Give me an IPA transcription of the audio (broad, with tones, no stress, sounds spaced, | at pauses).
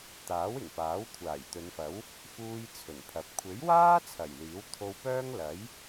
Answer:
t̪ aː˨˥ w ɪ˨˩ ŋ p aː˨˥ w kʷʰ aː˨˩ j t̪ ɵ˨˧ n f ɐ˨˥ w | f uː˧ j t͡sʰ ɵ˨˩ n pʰ ɐ˨ p̚ kʷʰ e˨˥ j w aː˥ t͡sʰ ɐ˨˩ j l iː˨˥ w t̪ʰ o˧ w p œː˥ ŋ l ɐ˨˥ j